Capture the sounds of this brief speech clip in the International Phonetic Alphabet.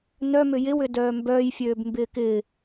n œ m ʏ j ɪ w ʏ d œː m b œː j fʲ øː b m b ɪː k ɪː

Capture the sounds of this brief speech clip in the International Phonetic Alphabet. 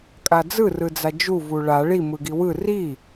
kʼ a d͡z ɯ r ɯ d͡z a d͡ʒ u v u ɭ a ɭ i m ɯ ɡ i w ɯ r i

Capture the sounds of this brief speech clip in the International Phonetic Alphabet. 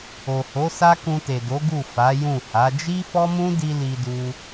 o˨ h o˨˦ s a˦ k ũ˧ t e˨ d o˨˦ ɡ u˦˨ f a˨˦ j ũ˦˨ h a˨˦ d͡ʒ i˦ f ɔ˦ m ũ˦ d i˧ l i˧ d u˧

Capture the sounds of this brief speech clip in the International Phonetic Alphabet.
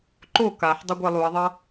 ǃ o k a ħ dˤ ʌ ɡʷ ɛ lˠ u ɐ̯ ðˤ ʌ

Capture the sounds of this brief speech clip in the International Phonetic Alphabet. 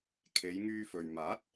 kʰ e˨˧ j ŋ yː˧ f ɵ˨ ɥ m aː˨˥ t̚

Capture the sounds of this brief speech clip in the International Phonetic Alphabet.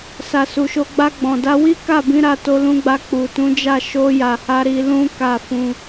s a˨ s u˨ ʃ o˧ ɡ͡b a˧ ɡ͡b ɔ̃˨ d a˧ w i˦ k a˦˨ b ĩ˨˦ ɾ a˧ t o˧ l ũ˧ ɡ͡b a˧ k͡p u˨ t ũ˨˦ d͡ʒ a˦˨ ʃ o˧ j a˨ h a˧ ɾ i˧ l ũ˦ k a˦˨ f ũ˧

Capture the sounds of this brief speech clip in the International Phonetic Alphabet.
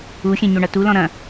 u xʲ ɛ̃ ɲ o ɳ ɐ t u l ɔ̃ ɾ ɐ̃

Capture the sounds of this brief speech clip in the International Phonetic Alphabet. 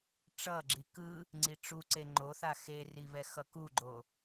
ʈ͡ʂ ʌ ɡ͡ǁ i k ɯ | ŋ͡ǀ i ʈ͡ʂ u ǀ e ŋ͡ǃ o θ a x e r i β ɛ x ʌ k u ɡ͡ǃ o

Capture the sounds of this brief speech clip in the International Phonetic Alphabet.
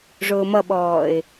ʐ ʊː m ʌ ɓ ɔː ɪ̯

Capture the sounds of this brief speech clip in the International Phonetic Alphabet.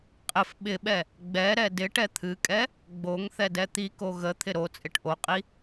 qʼ ɪ f ɓ ɪ ɓ ɛ | ɡ͡b ɛ ɾ ɛ d ɪ ʈ ɛ t̪ʰ ɨ kʼ ɛ | ɡ͡b o ŋ θ ɛ d ɛ t̪ i k o ɣ ə t̪ʰ ɪ ɾ o t͡sʼ ɪ ʈ ʔ o qʼ i

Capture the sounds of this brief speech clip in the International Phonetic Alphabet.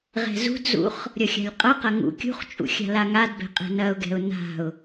ʁ ɛ̤ z ṳ d z ṵ χ | ɾʲ ʌ xʲ a̤ lʲ qʼ ʌ q ɐ ŋ ṵ kʲ ṳ χ t͡ʃʼ ṵ xʲ a̤ l a ŋ a d b ɛ̤ qʼ ɛ̤ n ɐ ʊ̯ ɡ ɛ̤ ʊ̯ n a̤ ʊ̯

